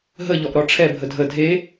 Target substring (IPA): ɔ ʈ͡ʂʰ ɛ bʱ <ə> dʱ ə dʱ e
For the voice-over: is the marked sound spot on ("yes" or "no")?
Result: yes